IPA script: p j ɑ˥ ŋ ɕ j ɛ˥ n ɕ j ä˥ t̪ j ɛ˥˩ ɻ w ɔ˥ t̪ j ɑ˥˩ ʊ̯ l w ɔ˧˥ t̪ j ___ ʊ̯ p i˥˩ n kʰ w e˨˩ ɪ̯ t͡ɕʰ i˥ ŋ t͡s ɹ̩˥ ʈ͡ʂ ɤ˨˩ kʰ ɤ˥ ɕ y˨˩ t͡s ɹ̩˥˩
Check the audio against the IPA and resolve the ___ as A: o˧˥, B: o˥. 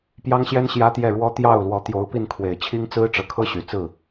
A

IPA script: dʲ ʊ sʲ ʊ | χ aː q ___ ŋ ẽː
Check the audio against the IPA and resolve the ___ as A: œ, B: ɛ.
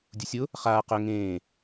A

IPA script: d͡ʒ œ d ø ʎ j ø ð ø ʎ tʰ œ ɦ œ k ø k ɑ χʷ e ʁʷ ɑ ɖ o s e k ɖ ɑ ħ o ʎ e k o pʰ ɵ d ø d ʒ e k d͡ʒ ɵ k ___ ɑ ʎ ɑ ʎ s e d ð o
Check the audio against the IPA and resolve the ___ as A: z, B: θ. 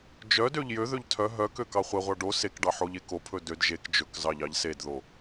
A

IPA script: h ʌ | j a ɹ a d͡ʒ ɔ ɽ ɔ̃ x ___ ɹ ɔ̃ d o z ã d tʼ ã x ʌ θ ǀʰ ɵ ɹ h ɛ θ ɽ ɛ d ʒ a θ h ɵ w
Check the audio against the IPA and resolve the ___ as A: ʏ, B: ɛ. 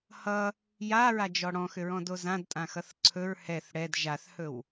A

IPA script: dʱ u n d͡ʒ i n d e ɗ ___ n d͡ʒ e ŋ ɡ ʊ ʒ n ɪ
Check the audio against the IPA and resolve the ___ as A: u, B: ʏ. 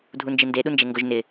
A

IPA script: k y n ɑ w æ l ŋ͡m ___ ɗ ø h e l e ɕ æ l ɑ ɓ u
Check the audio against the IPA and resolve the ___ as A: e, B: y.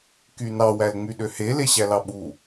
B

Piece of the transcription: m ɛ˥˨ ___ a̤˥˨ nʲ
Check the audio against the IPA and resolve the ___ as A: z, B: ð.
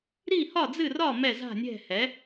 A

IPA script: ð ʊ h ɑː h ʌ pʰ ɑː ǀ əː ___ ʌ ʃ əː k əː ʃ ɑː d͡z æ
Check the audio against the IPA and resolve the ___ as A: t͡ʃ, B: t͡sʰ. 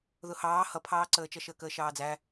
A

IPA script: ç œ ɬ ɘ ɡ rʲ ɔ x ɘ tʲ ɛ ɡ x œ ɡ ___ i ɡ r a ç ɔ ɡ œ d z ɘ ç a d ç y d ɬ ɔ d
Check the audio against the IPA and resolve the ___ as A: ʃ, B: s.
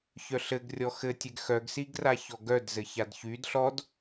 B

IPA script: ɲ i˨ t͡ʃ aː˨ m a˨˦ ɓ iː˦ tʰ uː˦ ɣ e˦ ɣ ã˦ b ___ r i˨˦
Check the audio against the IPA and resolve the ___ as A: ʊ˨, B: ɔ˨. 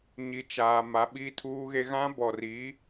B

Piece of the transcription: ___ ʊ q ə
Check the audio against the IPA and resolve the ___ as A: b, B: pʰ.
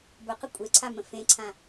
A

